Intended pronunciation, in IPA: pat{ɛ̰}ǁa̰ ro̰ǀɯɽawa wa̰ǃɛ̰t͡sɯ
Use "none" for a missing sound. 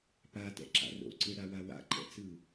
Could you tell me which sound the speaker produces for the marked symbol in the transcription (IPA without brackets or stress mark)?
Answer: ɛ̰